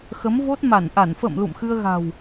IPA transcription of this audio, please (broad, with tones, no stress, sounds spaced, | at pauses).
x ə˨˦ m v o˦˥ t̚ m a˧˩ n ʔ a˧˩ n f ə̰˧˨ m l ṵ˧˨ m x ɨ˧ ə̯ ɣ a̤˨˩ w